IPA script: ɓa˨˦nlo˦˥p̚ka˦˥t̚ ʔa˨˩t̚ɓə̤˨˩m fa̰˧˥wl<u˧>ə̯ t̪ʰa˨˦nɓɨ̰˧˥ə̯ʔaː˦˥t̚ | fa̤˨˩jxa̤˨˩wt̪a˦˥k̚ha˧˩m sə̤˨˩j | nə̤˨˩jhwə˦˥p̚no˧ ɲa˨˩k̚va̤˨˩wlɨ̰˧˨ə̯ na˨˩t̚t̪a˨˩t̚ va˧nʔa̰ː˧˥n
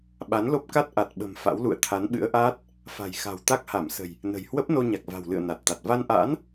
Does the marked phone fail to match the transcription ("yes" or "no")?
yes